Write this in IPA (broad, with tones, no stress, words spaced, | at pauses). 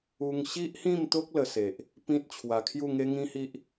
u˧ŋɕi˦ʔhĩ˥˧mt̪o˦k̚ lə˧se˨ʔ | pĩ˦t̚t͡ɕʰwa˧ kʰju˥˧ŋe˦ŋĩ˦hi˦ʔ